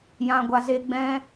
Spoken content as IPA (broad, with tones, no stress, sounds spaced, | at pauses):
j ã˧ ɡʷ a˧ z e˧ ɡ͡b ɛ̃˦